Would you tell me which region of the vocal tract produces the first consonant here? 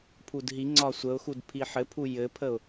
lips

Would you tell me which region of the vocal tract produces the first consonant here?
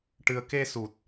retroflex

